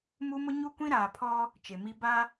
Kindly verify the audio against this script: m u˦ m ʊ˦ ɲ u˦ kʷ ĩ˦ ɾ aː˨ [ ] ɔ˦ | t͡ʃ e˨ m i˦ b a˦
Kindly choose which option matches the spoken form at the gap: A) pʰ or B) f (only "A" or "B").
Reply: A